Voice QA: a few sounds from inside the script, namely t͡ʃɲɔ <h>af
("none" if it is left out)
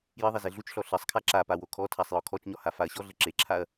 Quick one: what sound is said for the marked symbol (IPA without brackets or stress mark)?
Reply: h